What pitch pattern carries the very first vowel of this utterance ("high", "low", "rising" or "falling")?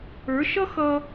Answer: rising